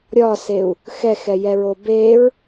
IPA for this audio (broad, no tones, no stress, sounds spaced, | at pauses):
ɾʲ ɒ s e u̯ | x ɛ x ɛ j ɛ ɹ o b e ɹ